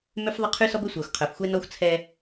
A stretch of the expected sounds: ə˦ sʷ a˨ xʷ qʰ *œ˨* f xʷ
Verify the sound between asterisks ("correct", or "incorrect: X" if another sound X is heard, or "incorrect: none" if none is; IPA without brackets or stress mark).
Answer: correct